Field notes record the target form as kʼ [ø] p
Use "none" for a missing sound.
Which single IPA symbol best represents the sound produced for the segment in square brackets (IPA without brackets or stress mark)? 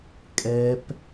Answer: ɛ